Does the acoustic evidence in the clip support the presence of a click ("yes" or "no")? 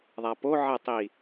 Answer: no